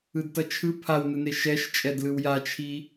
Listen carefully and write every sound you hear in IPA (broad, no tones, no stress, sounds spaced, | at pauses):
ɯ d t ʌ t͡ʃʰ ɯ pʰ a w n ɯ n e ʃ ɛ ʃ t͡ʃʼ ɛ d l ɯ w j a t͡ʃʰ i